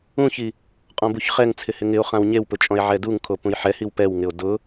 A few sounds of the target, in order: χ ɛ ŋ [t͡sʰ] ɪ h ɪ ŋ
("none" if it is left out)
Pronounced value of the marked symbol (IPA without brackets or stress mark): t͡sʰ